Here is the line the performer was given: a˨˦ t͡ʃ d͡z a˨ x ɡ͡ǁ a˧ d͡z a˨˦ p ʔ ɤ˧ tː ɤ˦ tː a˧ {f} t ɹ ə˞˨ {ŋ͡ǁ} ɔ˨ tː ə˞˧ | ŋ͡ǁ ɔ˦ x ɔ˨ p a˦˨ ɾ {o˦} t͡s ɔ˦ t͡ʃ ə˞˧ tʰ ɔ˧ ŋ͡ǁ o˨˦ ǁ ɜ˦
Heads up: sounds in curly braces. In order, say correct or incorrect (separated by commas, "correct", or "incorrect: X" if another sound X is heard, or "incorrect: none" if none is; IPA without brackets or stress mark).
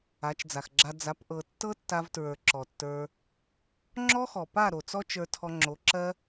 incorrect: v, incorrect: ǁ, incorrect: o˨